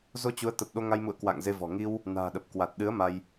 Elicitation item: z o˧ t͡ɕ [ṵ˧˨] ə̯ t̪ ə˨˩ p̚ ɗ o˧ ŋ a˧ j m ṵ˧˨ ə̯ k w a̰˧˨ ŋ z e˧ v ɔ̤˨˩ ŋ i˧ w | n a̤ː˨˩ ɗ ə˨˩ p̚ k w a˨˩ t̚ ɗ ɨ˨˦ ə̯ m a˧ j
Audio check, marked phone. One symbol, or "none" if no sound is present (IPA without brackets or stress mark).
u˨˦